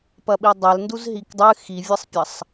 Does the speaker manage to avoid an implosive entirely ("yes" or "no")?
no